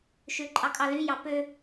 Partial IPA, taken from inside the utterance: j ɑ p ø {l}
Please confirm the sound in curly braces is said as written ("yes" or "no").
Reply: no